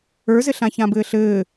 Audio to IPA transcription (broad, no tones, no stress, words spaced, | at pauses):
ə˞zɘɬã çãbɘːɬɘː